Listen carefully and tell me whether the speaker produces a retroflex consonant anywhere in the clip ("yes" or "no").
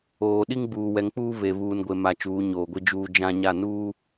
no